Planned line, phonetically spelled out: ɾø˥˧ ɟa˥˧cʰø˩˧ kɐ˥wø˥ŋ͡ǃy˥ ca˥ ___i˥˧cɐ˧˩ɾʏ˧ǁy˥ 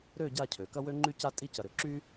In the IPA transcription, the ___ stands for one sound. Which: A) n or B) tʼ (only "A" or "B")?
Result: B